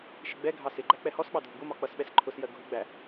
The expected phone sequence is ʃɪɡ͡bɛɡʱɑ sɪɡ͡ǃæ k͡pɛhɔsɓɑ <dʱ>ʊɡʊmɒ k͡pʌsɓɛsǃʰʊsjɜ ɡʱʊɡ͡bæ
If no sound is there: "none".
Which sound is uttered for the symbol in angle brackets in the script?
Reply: dʱ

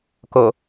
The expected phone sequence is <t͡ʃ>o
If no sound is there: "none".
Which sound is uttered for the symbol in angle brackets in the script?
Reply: k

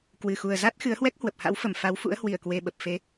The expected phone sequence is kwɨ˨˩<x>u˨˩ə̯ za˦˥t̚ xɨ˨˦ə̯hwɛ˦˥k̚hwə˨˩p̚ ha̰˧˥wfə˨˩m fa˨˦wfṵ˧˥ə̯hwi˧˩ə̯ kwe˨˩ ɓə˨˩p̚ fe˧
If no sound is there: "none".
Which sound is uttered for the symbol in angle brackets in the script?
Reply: x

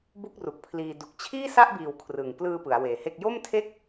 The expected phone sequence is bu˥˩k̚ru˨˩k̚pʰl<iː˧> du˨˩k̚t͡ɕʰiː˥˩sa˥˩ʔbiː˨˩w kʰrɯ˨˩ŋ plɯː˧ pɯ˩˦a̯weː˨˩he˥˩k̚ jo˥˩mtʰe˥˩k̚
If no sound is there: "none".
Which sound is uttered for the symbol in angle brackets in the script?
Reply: iː˧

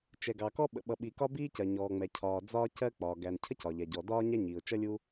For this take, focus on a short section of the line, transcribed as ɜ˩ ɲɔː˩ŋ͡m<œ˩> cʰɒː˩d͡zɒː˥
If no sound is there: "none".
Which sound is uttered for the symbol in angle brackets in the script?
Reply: ɛ˩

